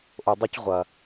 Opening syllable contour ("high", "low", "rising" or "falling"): low